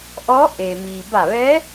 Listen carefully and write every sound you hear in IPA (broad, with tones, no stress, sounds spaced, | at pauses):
ʔ ɔː˧˥ ʔ e˩ m iː˩ b a˧˩ ʋ ɛː˧˥